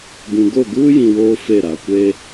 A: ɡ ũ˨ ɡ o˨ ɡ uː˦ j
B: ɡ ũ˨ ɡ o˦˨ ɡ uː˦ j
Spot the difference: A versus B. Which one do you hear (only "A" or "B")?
B